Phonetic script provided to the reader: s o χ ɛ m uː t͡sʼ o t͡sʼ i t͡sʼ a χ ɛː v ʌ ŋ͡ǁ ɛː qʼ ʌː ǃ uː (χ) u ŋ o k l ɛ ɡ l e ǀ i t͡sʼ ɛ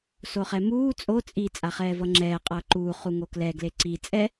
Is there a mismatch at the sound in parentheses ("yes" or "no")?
no